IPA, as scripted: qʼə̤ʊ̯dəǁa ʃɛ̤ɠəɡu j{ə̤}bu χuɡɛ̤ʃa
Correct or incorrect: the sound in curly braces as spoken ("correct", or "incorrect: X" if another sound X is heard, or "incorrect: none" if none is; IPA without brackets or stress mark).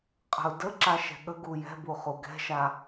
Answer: incorrect: ɛ̤